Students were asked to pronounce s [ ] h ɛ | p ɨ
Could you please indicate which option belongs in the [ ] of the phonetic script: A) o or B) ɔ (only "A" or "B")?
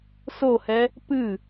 A